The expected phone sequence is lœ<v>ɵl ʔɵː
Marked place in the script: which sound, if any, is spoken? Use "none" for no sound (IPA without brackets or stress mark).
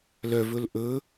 v